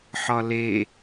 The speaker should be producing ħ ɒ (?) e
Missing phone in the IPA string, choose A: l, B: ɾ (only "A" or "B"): A